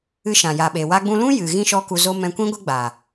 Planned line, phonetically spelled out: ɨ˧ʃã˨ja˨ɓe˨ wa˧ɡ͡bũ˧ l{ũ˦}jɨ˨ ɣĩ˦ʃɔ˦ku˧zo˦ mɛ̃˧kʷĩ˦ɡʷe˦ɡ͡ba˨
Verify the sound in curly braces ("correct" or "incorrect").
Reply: correct